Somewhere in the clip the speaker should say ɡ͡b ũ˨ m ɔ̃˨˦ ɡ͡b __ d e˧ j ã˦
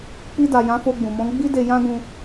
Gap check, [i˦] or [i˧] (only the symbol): i˦